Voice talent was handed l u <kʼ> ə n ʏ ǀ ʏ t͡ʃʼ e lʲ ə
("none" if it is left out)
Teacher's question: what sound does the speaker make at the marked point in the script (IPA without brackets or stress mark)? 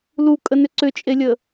kʼ